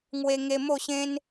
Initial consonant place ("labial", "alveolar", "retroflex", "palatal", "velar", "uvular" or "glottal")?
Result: velar